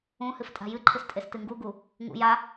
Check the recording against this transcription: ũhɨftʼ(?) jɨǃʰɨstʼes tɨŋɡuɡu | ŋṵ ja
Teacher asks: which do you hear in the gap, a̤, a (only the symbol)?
a̤